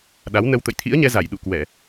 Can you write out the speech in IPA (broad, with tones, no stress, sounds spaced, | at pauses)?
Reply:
ɗ a˨˦ w n ə˧ w t̪ ə̰˧˨ j t̪ʰ ḭ˧˥ ə̯ ɲ ɛ˧ z a˧˩ j ɗ ṵ˧˨ k w ɛ˧˩˨